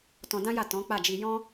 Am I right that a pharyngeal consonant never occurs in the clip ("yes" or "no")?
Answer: yes